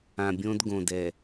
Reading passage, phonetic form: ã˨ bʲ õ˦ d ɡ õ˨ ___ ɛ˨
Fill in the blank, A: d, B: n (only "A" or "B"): A